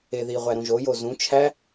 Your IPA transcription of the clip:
e ð i ʁʷ æ ɾ ũ ʒ o j o z ũ t͡ʃʰ æ

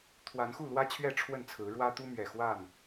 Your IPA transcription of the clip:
t̪ʰ w a˨˦ n x u˥˨ l w ä˦ t͡ɕʰ ɥ ɛ˥˨ ʈ͡ʂʰ w ə˥˨ n t͡sʰ ɹ̩˨˦ ɻ w ä˦ t̪ u˦ m ɥ ɛ˨˩ x w a˥˨ n

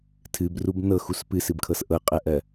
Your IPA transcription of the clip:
tʰ ɨ b r u b n ɤ x u s p ɨ s ɨ b kʰ ɤ s ʔ ɤ qʼ ɜ ʔ ɜ

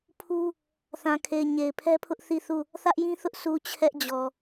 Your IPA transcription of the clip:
pʰ u˦ | θ ã˨ kʰ e˨ ɪ̯ ɲ e˨ ɪ̯ pʰ ɛ˦ pʰ ʊ˦ ʔ θ i˦˨ θ u˦˨ | θ ä˦ ʔ j ĩ˦ θ ʊ˦ ʔ sʰ u˨ t͡ɕʰ ɛ˦ ʔ d͡ʑ ɔ˨

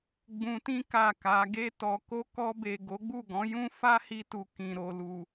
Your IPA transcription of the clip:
ɡ͡b ũ˧ t ĩ˦ k a˦˨ k a˨˦ ɡ e˧ t ɔ˨ k o˧ k ɔ˧ b e˨ ɡ o˨˦ ɡ͡b u˦˨ ɡ ɔ̃˨˦ j ũ˦ f a˦ h i˧ t u˨ k ĩ˨ ɾ o˨ l u˨

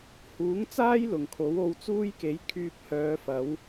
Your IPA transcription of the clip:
h uː˨˥ ŋ t͡s aː˥ j l ʊ˨˩ ŋ kʰ o˨˥ w o˧ w t͡s uː˥ j k e˨˥ j kʰ yː˧ p̚ h œː˨˧ f ɐ˨˥ w

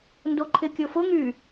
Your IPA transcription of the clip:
n d o ǃʰ ɪ kʲ ʊ f ʊ ŋ y

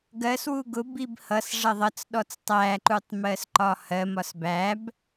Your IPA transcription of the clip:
ɡ ɜ s w u ɡ ʊ b i b h ʌ s ʐ ʌ ðˤ ʌ t͡s ɗ ɔ t͡s tˤ æ ǃ u tˤ m ɜ s ǃ ɒ h ɜ m ɒ s b æ b

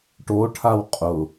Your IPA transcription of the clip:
ʈ o ʈʰ a w qʼ ʊ

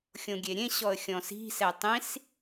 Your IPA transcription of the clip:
xʲ õ ɡʲ e ɾʲ ẽ ɕ ɔ ə̯ xʲ ɔ̃ s i̤ s ɛ tˤ ĩ s

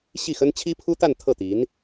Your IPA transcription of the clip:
ɕ i˥˩ x ə˥ n t͡ɕʰ i˥ pʰ u˥ t̪ a˥˧ n t̪ʰ ɤ˥˩ t̪ i˧˥ n

